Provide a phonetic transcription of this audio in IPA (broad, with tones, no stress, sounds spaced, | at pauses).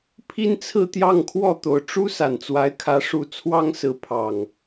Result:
pʰ i˦ n t͡sʰ ɹ̩˥˨ t̪ j ɑ˥˨ ŋ kʰ w ɔ˥˨ t̪ o˨˩ ʊ̯ ʈ͡ʂ u˦ s a˨˩ n t͡s w a˨˦ ɪ̯ kʰ ä˨˦ ʂ u˨˩ t͡sʰ w ɑ˦ ŋ s ɹ̩˨˦ pʰ ɑ˨˩ ŋ